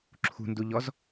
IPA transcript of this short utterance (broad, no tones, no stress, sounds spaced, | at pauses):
ǁʰ ṳ n d u ʎ ɔ z